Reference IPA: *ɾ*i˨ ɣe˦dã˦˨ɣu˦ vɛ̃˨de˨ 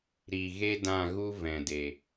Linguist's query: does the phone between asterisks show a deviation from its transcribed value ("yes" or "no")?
no